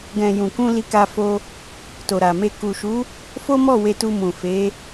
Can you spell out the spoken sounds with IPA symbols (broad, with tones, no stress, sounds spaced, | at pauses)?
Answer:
ɡ ɛ̃˨ j ũ˨ k ũ˧ l i˧ k a˧ f o˧ | t o˨ ɾ a˨ m e˧ k u˨ ʃ u˨˦ | f o˦ m ɔ˦˨ w e˧ t u˧ m ũ˨ f e˨˦